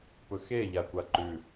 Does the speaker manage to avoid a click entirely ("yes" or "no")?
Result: no